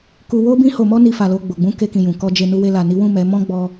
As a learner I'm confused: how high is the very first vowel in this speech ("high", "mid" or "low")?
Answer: high